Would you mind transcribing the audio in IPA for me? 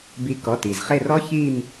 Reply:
b i˨˦ k ɔ˩˧˩ t i˩ z χ e˦˨ r ɔ˦˥ ç i˦˨ m

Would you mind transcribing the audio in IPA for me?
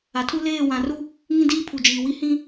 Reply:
a˨ tʰ u˦ l eː˦˨ w ã˨ r u˦ | ŋ ĩ˦ d iː˦ pʰ u˨ d͡ʒ iː˨ w i˦ h ĩ˦

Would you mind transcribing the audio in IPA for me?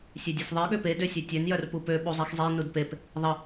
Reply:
sʲ ø dʲ e sʲ ðˤ i ɠ ø p e d ø sʲ ø tʲ ø n j œ r p u p ø ɓ u zˤ i x zˤ e n u d p e p | ðˤ ə

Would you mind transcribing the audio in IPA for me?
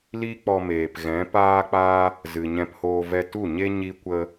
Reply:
l i˦ k͡p ɔ˧ m eː˨ p ɣ ɛ̃˨˦ p aː˦ k͡p aː˦ | z ɨ˨ ɲ ɛ̃˧ p h oː˧ v ɛ˧ t u˦˨ ɲ e˦ ɲ i˦ kʷ ə˦

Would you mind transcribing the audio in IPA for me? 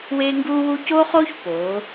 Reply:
w eː˥ ŋ ɡ uː˥ w u˥ c oː˥ χ oː˥ ç p oː˩˧

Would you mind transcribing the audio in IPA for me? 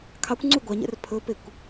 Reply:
kʰ ɑ kʷ ŋ͡ǀ u ɡʷ ɑ ɲ ɛ̰ r pʰ ɵ p e kʷ

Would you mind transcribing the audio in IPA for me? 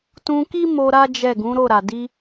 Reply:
t ũ˧ k i˦ m o˧ ɾ a˦ d͡ʒ ɛ˦˨ ɡ ũ˨˦ ɾ o˦˨ ɾ a˨ d i˧

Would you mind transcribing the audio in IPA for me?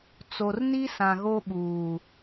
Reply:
t͡s o˨ r n i˦ s ã˨ ɣ o˦ ɓ uː˨

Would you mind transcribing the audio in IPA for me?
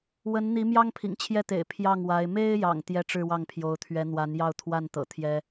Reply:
w ə˧˥ n n̪ i˧˥ m j ɑ˥ ŋ pʰ ḭ˨˩ ŋ t͡ɕʰ j ɛ˥˩ t̪ ḛ˨˩ ɪ̯ pʰ j ɑ˥˩ ŋ w a˧˥ ɪ̯ m e˥ ɪ̯ j ɑ̰˨˩ ŋ t̪ j ɛ˥˧ ʈ͡ʂ ɻ̩˥˧ w ɑ˥˩ ŋ pʰ j o˧˥ ʊ̯ t̪ʰ ɥ ɛ˧˥ n̪ w a˧˥ n j ɑ˥˧ ʊ̯ t̪ʰ w a˥˩ n t̪ ɤ̰˨˩ t̪ʰ j ɛ˥

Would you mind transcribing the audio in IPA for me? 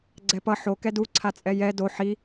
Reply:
ɡ͡ǀ ɛ p ʌ ħ o k ɛ d u ǀʰ a t͡sʼ ɛ j ɛ d o ħ i

